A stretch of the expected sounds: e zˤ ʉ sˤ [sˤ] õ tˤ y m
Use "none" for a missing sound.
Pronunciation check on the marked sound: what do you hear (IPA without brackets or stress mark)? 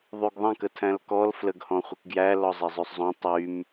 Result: zˤ